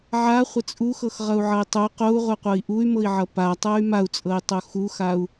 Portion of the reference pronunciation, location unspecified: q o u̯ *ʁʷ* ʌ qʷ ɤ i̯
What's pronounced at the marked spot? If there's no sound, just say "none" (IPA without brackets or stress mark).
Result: ʁʷ